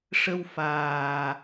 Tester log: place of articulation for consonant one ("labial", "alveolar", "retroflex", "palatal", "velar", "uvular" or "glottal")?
retroflex